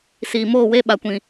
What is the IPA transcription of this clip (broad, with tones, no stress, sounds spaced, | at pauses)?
s iː˨ m oː˦˨ w e˦ ɓ a˨ kʷ ĩ˨